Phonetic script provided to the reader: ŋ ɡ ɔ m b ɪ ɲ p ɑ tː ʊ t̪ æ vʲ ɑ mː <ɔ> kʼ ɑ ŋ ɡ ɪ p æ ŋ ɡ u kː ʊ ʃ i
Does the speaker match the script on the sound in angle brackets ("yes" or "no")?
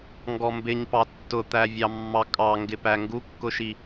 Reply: no